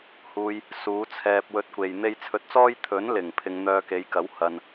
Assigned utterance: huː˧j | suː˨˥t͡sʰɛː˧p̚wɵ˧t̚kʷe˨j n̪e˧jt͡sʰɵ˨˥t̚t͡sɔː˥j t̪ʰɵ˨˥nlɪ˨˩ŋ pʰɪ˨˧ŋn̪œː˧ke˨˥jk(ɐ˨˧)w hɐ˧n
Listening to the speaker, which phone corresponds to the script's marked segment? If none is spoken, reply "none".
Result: ɐ˨˥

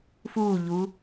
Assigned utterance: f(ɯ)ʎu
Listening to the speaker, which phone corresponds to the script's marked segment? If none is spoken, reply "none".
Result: u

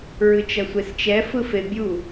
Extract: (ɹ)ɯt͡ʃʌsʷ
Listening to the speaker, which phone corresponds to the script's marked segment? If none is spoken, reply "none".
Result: ɹ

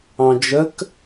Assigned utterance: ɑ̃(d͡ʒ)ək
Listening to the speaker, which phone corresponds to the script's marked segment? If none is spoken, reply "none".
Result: d͡ʒ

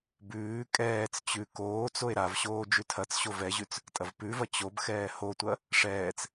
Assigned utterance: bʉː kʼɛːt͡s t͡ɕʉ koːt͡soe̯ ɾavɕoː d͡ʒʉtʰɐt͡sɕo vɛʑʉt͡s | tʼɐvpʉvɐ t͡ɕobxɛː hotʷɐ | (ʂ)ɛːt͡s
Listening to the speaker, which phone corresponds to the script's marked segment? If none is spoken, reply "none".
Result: ʂ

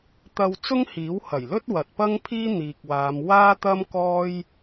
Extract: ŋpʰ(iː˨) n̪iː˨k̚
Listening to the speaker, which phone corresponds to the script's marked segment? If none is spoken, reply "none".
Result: iː˥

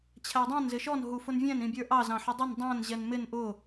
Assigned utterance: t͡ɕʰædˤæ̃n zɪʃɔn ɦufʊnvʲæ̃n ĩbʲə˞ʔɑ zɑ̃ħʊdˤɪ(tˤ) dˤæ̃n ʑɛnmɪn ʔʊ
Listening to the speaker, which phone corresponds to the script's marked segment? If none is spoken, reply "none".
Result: n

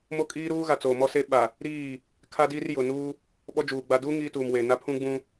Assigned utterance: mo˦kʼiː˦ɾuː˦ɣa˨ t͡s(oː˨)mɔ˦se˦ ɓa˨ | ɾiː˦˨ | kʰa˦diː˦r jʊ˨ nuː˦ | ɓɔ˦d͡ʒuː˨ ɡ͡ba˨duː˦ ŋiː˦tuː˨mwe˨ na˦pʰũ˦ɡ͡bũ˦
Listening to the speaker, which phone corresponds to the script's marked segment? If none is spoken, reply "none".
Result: oː˨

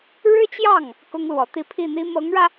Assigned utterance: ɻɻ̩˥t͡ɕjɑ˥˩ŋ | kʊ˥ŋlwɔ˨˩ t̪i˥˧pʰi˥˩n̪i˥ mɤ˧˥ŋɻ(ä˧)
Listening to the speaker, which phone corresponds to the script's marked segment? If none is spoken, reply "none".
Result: ä˧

